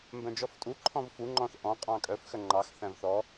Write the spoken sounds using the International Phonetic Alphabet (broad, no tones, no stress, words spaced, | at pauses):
mbœ̃d͡ʒɔftʼu ǃʰɔ̃vfu ŋ͡ǃɔ̃θʔɔ̃ qʼɑ̃kʼœf xœŋ͡ǃɑx θæ̃vθɔ